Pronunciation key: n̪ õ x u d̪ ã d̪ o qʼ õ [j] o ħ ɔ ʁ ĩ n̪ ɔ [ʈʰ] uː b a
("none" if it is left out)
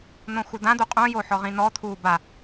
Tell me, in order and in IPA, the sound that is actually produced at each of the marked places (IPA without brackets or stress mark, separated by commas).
j, t̪ʰ